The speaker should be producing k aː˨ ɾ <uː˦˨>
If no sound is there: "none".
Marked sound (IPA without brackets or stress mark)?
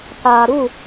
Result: u˦˨